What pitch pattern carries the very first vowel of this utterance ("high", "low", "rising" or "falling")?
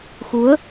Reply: rising